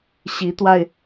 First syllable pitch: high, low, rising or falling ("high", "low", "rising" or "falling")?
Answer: rising